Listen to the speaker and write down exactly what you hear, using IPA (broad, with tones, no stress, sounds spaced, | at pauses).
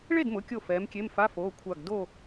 ɭ e˥˨ d m ʊ˩˧˩ kʲ o˧˩ f ɛː˨˥ m kʲ e˧˥˧ m f a˧˥˧ f oː˩˧˩ kʷʰ a˧˩ ɡ d o˥˨